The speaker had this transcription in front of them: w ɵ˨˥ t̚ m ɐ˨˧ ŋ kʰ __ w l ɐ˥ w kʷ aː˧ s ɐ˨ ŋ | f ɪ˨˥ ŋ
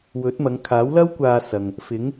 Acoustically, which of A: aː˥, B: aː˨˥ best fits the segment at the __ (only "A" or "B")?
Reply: B